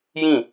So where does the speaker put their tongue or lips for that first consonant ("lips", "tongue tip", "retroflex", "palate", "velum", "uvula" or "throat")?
palate